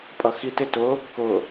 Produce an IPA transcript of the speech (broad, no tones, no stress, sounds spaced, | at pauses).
pʼ ʌ x i t ɪ t ʊ | k ʊ